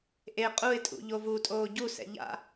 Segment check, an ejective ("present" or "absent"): present